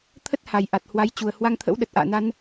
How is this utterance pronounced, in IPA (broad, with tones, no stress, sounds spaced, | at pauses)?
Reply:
t̪ʰ ə˦˥ t̚ h a˨˩ j ʔ a˨˩ t̚ h w a˨˦ j t͡ɕ u˨˩ ə̯ h w a˧ ŋ t̪ʰ ə̰˧˥ w ɗ ə˨˩ t̚ ʔ a̰ː˧˨ n a˧ n